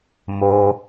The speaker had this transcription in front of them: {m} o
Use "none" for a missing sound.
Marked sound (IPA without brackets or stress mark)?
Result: m